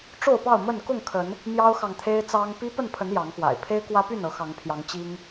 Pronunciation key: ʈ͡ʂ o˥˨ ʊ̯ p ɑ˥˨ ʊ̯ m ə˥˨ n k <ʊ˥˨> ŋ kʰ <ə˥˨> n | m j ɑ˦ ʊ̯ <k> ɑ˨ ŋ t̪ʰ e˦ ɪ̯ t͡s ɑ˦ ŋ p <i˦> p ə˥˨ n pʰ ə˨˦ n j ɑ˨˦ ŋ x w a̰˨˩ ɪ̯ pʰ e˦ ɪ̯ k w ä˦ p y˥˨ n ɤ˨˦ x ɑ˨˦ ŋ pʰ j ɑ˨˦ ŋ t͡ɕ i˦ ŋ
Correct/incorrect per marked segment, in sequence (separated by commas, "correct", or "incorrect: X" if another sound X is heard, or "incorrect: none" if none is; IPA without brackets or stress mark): correct, incorrect: ə˨˦, incorrect: x, correct